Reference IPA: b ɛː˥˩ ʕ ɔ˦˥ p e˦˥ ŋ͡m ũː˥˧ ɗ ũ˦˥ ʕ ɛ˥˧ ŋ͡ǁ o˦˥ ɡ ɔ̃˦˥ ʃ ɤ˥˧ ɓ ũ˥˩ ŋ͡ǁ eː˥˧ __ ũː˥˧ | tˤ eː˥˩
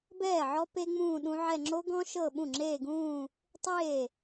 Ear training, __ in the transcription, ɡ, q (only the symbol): ɡ